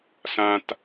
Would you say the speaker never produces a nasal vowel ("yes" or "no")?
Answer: no